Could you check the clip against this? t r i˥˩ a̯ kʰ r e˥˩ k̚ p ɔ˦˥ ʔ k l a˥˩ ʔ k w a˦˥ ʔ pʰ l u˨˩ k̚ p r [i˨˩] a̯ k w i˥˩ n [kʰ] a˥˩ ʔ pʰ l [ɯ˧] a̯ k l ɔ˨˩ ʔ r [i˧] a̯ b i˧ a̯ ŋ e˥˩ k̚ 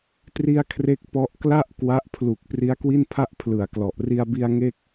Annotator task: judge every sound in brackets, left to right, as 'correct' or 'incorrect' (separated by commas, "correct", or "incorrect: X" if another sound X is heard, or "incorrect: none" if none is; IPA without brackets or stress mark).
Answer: incorrect: i˦˥, incorrect: pʰ, incorrect: ɯ˨˩, correct